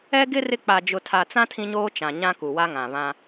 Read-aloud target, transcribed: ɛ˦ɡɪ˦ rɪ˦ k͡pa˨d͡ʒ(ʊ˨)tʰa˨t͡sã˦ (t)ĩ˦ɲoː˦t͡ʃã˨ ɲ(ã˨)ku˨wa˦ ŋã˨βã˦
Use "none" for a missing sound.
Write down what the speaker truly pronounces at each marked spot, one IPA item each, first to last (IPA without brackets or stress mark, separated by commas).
ʊ˨, tʰ, ã˦